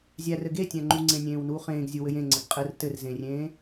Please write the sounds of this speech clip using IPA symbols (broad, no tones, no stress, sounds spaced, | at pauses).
zʲ æ r ɘ ɡ e tʲ æ̃ ŋ͡ǃ u ŋ͡ǀ ẽ nʲ ẽː w n uː χ ẽː ɡ zʲ u w ɘ j ẽ ŋ͡ǀ ɘ ɡ qʼ ɘ r t ɘ r z ẽ rʲ ẽː